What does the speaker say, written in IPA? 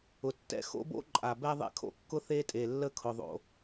ʊ˨ tː ɛ̰˦ x o̰˦ b o̰˦ ǃʼ a˨ b ɛ˦ ðˤ ḛ˦ kʰ o̰˨ kː ʊ˦ θ e˦ tʼ e˨ lː ə˦ kʰ ʊ˨ ðˤ o̰˨

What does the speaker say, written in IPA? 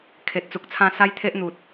kʰ e˨ t̚ t͡s u˨ k̚ t͡sʰ ã˥˧ s a˦ j t̪ʰ e˦ ʔ n̪ u˨ t̚

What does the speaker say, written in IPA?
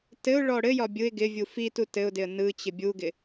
t ɘ ʊ̯ ɭ ɔ ɽ ɘ j ɒ bʲ ɯ ɪ̯ ɡ ɪ vʲ u f i t u t ɘ ʊ̯ d ɪ ə̯ n ɯ t͡ɕ ɪ bʲ u ɡ ɪ

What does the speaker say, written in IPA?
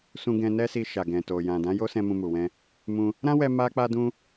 s ũ˧ ɡ ɛ̃˧ n ɛ˦ s i˧ ʃ a˨ ɡ ɛ̃˨ t o˨ j ã˨ d ã˨˦ j o˦ s ɛ̃˧ m ũ˧ m u˨ w ɛ̃˧ | m ũ˧ | ɾ ã˦ w ɛ˧ m a˦ k͡p a˦ d ũ˦

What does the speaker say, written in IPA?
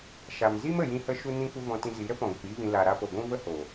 ʃ a˨ m z i˦ m ə˨ j ĩ˦ h ə˦ ʃ u˦ n ĩ˦ kʷ ə˦ v ɔ̃˧ t ĩ˧ z i˨˦ ɾ ə˦ p ɔ̃˨ ɡʷ ə˨ p iː˦ v ĩ˧ l a˨ ɾ a˧ p o˨ ɡʷ ũ˦ v ə˦ h o˨

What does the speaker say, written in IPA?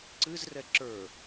ǀ ɨ z r ɛ ǁ ə˞

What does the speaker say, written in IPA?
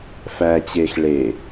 f æ t͡ɕ eː x ɭ e

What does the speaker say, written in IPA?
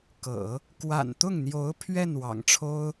k ɤ̰˨˩˦ | k w a̰˨˩ n t̪ ʊ˥˩ ŋ n̪ j o˧˥ ʊ̯ pʰ ɥ ɛ˥˩ n w ɑ̰˨˩ ŋ ʈ͡ʂʰ o˥ ʊ̯

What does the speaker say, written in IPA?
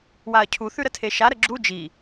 w a ɐ̯ cʰ u θ ʉ ɾ ə tʰ e ʃ a ɾ ə ɡ͡ǁ u d͡ʒ i

